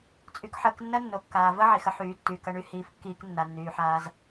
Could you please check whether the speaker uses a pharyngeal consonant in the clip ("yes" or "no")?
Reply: yes